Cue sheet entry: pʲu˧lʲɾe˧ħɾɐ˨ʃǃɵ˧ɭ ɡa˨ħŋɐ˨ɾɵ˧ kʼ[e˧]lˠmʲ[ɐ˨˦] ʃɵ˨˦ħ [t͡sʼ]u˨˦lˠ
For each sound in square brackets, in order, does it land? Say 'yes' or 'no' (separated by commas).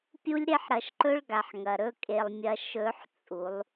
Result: no, no, yes